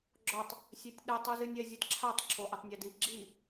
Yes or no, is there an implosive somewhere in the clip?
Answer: yes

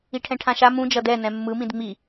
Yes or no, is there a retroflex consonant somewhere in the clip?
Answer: yes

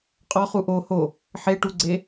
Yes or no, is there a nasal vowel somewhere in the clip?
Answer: no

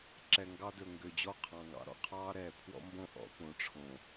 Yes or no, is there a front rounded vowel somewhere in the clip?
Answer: yes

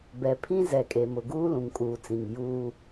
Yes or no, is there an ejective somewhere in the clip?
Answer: yes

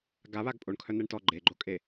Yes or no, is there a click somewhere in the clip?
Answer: yes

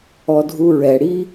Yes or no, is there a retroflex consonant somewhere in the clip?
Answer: yes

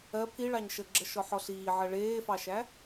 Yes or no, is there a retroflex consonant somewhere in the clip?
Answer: yes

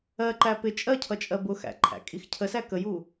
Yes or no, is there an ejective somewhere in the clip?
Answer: yes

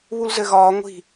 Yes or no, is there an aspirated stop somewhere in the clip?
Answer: no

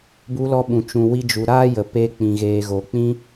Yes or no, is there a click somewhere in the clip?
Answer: no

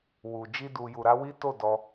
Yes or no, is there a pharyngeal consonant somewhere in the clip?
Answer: no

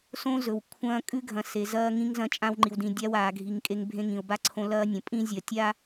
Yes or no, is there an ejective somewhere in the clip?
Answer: yes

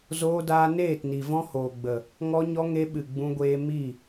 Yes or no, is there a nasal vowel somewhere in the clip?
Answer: yes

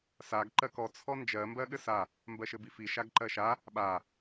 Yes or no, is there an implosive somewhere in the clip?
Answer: yes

